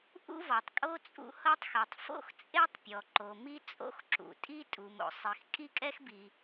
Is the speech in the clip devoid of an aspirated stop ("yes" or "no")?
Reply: yes